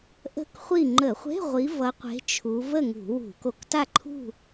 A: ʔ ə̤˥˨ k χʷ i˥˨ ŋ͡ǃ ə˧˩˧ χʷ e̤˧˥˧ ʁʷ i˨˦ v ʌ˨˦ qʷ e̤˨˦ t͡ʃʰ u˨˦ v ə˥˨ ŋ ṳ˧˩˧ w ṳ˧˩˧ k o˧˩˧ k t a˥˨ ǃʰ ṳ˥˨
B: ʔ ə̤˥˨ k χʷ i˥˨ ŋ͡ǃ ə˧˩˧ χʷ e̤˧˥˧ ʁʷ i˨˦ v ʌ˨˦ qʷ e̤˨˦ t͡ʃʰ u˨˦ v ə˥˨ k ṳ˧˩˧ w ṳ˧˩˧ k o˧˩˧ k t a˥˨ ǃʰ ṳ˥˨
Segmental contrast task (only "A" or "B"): A